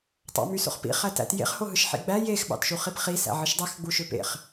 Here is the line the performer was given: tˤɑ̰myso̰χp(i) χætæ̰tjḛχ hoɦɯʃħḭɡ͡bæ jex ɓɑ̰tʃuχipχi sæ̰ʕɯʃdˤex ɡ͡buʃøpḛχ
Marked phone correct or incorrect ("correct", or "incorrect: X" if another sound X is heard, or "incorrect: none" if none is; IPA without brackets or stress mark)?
incorrect: ḭ